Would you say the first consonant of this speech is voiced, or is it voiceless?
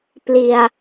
voiceless